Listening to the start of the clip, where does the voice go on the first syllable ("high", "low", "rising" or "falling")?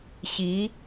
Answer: rising